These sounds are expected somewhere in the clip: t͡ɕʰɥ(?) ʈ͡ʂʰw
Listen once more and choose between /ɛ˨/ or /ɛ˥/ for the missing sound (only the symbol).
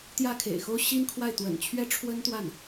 ɛ˥